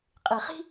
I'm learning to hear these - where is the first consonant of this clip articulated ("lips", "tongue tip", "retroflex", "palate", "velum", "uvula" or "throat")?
uvula